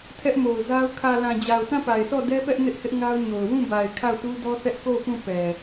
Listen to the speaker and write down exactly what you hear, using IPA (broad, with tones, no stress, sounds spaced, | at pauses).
tʰ ɛ˦ ʔ m o˨ ʊ̯ z a˦ ʊ̯ kʰ ä˨ l ã˨ d͡ʑ a˨ ʊ̯ t ã˦˨ p a˨ ɪ̯ sʰ ɔ˦˨ d ɛ˦ p ɛ˦ ʔ n ɪ˦ ʔ h ɪ˦ ʔ ŋ a˦ ʊ̯ ɲ o˨ ʊ̯ w ũ˦˨ b a˨ ɪ̯ kʰ a˦˨ ʊ̯ t u˦ d ɔ˦ θ ɛ˦ ʔ k o˦˨ ʊ̯ p ũ˦˨ p ɛ˨